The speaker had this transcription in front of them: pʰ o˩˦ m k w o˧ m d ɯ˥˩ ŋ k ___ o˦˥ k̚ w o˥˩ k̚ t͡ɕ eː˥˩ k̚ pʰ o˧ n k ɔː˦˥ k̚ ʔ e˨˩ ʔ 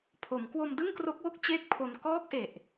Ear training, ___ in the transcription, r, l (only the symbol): r